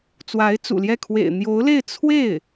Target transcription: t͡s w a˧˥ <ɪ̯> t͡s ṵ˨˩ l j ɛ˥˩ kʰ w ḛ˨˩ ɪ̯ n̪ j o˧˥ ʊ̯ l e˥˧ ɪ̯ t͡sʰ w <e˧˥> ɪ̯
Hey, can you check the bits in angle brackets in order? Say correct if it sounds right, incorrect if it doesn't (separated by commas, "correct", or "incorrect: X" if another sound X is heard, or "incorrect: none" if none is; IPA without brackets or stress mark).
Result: correct, incorrect: e˥˩